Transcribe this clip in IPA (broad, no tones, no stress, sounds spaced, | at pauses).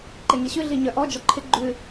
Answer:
ǃ e ŋ i ɕ ʉ ɮ i ɲ œ ʔ ɔ d͡ʒ ɔ ǃʰ ɪ ɡ͡ǃ ʉ